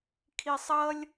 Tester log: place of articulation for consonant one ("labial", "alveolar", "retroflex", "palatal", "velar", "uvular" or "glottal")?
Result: velar